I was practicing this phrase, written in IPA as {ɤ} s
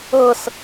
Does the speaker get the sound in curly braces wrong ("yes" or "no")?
no